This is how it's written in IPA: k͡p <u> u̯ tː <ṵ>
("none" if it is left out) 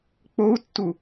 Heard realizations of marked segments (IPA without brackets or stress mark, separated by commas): o, u